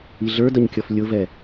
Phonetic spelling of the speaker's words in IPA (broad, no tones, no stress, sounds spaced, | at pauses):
i ɮ ə˞ d ʌ ɲ kʲ ɔ f lʲ ʊ v ɛ